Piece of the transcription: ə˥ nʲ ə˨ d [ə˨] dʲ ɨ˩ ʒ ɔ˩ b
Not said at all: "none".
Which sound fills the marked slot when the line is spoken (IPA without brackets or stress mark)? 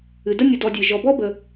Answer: ɔ˨